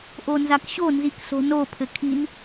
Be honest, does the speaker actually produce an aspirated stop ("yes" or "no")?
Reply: yes